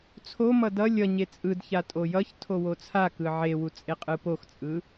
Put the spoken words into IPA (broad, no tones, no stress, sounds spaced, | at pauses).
t͡sʰ o m ʌ d ʌ lʲ ʌ ɲ e t͡sʼ ɯ d ç a tʼ o j ʌ ç tʰ o w o t͡sʰ a k ɯ ʕ e w u t͡sʼ e qʼ ɯ p o x t͡sʼ ɯ